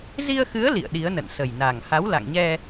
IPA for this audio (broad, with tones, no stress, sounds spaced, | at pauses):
z i˧ ə̯ x ɨ˨˦ ə̯ l ḭ˧˨ ə̯ ɗ i˨˦ ə̯ n ə̰˧˨ n s ə˨˩ j n a˨˩ ŋ h a˨˦ w l a̰˧˨ ŋ ɲ ɛ˧